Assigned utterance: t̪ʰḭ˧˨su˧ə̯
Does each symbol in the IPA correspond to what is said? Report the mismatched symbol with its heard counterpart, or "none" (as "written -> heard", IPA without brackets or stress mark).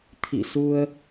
none